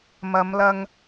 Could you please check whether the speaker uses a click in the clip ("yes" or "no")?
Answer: no